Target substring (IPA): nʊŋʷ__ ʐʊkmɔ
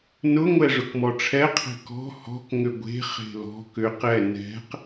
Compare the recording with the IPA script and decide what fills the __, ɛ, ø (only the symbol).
ɛ